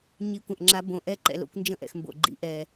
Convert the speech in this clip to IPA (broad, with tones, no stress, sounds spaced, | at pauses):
ɲ i˩˧˩ kʷ ə̃˩ ʔ ŋ͡ǁ a˩˧ b õ˩ ʔ ɛ˧˩ ǃ ɛ̰˩ l o̰˩˧˩ kʷ n d͡ʒ ə̃˧˩ ʔ ɛ̰˩ x m b o̰˩ ɡ͡ǃ ḭ˩˧ ʔ ɛ˩